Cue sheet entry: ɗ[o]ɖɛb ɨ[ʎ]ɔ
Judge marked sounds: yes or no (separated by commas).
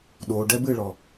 yes, no